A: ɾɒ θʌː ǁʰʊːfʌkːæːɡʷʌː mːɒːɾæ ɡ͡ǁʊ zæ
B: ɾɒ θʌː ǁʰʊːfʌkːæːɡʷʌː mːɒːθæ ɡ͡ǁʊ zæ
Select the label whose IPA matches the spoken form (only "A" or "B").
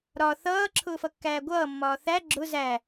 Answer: B